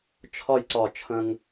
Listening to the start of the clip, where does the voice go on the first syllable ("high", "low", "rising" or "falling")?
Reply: falling